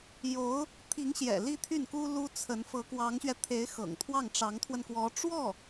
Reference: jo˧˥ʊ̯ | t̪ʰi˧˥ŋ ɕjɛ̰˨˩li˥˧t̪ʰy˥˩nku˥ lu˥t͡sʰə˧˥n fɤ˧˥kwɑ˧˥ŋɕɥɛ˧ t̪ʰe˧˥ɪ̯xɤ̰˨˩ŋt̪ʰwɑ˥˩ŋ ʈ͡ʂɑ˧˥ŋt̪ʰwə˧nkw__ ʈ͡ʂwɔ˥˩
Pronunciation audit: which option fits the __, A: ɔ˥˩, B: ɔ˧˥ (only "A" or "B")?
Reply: B